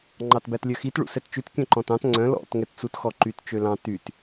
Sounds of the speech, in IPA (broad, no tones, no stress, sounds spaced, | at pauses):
ŋ͡ǃ ɑ t b æ t lʲ œ x i t ɭ ṵ s ɛ t t͡ʃ ʉ t kʲ œ̃ ǃ ɔ̃ t ɑ̃ t ŋ͡ǀ œ̃ l ɔ̰ t ŋ ɛ t t͡s u t x ɔ ǃ y t t͡ʃ ø l ɑ̃ t y t